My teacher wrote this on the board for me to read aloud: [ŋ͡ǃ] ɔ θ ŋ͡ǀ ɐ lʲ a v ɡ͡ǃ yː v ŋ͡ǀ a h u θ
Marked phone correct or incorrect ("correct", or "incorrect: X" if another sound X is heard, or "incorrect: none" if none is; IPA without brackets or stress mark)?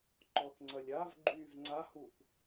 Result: incorrect: ǃ